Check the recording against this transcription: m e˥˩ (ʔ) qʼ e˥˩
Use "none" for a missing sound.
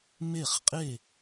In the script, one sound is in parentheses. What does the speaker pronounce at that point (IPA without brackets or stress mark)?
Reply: χ